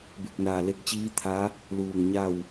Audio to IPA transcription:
b e˧˩ k̚ n aː˧˩ l e˧ k̚ t͡ɕ iː˧˥ t̪ʰ a˧˥ | l uː˧˩ ŋ ɲ a˥˨ w

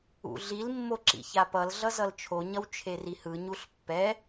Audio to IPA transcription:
ṵ ɮ i l mː o ǁ ḭ ç a p ʌ l ɮ ʌ z ʌ l t͡ʃʰ o ɲ ʌ w t͡ʃʰ e r i h ɯ ɲ u ɬ pː ɛ

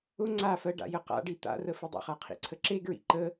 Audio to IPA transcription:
ʊ ŋ͡ǀ a f ɜ ɖ a̰ j ə q a̰ ɖ i t̪ a̰ r ə f i dˤ ṵ χ a qʰ ḭ ǀʰ ə ǁ e ɡ ɹ ḭ ǃ ə

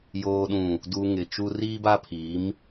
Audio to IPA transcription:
j oː˨ ɗ ũ˨ | d u˨ ŋ ɪ˨ t͡ʃ u˦ r iː˦ b a˦ pʰ i˨˦ m

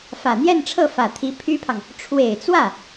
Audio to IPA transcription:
f ä˨˩ n̪ j ɛ˥˧ n ʈ͡ʂʰ ɤ˥˩ f ä˨˩ t̪ʰ i˧˥ pʰ y˥ pʰ ɑ˨ ŋ | ʈ͡ʂʰ w e˨˩ ɪ̯ t͡s w ä˥˩

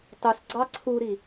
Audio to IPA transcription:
tˤ u s ɡ͡ǀ ɑ ǀʰ u ɾ i

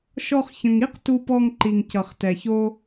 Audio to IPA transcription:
ʃ ɔ˧ χ ç ə̃˨ ŋ i˦ q t u˧ p ɔ˧ ŋ ǃ i˨ ŋ c ʌ˨ χ t ɛ˨ ç o˦

